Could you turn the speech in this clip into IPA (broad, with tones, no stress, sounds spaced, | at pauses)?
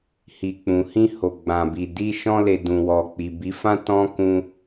h i˨ k͡p ũ˨ h ĩ˧ h o˨ ɡ͡b ã˨ b i˨ d i˧ ʃ ɔ̃˧ l e˨ d ũ˨ w ɔ˨ k͡p i˨ b i˨˦ f ã˦ t ɔ̃˦ k ũ˧